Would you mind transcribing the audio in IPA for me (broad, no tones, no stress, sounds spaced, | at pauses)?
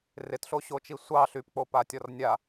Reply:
r ɪ t ɬ o ɕ o t͡ʃ i sʷ ɑ ɬ y p k͡p o p a tʲ ɔ r nʲ a